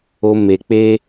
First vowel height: mid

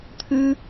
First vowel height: high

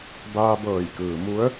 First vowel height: low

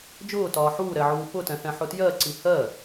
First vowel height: high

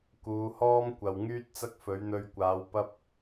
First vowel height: high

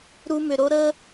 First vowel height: high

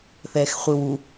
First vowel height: mid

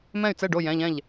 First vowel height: mid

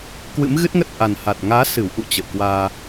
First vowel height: high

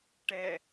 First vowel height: mid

